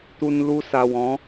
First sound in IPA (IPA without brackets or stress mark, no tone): t̪